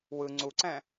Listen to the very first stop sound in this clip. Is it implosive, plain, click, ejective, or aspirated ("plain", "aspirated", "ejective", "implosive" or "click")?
click